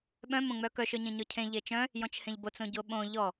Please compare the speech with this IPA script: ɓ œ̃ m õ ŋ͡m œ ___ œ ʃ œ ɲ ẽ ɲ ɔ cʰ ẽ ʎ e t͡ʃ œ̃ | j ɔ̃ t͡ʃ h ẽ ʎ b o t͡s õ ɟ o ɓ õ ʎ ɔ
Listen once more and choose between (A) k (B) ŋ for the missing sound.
A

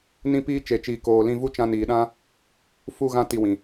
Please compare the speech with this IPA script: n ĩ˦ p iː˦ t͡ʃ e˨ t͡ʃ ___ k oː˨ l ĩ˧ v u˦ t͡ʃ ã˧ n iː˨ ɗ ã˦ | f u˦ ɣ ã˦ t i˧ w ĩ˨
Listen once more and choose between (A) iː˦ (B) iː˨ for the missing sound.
B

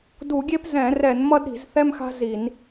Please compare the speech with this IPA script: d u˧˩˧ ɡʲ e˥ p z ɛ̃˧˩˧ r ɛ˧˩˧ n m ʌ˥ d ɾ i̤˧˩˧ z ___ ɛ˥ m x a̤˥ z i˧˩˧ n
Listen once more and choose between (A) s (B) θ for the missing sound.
B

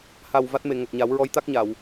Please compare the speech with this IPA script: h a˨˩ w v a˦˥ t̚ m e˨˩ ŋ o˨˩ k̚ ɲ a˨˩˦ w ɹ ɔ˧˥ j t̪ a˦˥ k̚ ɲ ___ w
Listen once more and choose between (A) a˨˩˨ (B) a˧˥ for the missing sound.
A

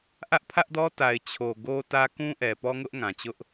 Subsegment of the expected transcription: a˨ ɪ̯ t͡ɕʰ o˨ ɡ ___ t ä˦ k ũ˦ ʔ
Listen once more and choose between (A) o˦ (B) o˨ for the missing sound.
A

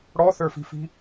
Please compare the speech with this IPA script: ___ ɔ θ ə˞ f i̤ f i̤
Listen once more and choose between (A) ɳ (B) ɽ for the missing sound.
B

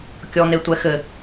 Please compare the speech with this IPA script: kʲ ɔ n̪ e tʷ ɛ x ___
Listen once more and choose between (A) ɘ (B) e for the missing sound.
A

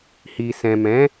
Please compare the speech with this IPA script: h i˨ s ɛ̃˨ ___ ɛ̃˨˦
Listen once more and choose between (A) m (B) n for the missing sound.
A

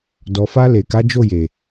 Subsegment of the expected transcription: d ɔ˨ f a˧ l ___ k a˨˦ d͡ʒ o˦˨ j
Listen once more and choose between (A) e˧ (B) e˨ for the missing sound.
B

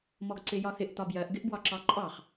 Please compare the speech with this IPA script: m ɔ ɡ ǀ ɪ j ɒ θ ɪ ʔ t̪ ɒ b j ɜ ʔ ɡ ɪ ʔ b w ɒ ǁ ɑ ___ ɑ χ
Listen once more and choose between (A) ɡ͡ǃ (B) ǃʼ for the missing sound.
B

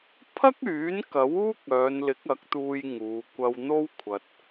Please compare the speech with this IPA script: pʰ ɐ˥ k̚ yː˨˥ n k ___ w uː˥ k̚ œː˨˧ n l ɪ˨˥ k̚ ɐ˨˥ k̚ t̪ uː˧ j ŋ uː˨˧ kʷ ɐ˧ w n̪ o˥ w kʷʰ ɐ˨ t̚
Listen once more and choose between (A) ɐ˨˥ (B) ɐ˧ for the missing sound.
A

